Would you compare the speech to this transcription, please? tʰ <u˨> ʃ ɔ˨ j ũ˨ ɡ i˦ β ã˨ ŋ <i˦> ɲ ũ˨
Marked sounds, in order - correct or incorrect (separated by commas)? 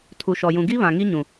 correct, correct